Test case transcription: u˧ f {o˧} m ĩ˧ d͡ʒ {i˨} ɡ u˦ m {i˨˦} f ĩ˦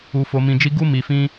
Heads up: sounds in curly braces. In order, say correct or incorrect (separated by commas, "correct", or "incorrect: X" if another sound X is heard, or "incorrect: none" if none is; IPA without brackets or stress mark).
correct, incorrect: i˦, incorrect: i˧